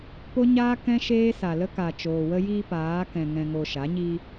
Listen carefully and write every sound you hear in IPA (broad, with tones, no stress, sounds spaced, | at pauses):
p o˧ ɲ aː˧ k ɛ̃˧ ʃ eː˧ s a˨ l ə˧ k a˨ t͡ʃ oː˨ w ə˦ j iː˦ p aː˨˦ k ɛ̃˨ ŋ ɛ̃˨ ŋ o˨ ʃ a˨˦ ɲ iː˦